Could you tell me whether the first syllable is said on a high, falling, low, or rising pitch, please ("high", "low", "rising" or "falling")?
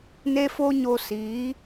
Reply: high